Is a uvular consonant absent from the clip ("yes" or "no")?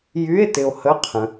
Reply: no